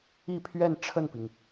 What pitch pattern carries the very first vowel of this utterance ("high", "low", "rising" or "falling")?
falling